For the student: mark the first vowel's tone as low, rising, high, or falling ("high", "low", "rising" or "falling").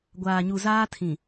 low